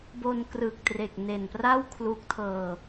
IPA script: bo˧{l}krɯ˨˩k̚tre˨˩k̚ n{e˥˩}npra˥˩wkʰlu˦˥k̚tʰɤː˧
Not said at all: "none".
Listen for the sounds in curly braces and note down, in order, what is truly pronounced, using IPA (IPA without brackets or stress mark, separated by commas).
n, e˨˩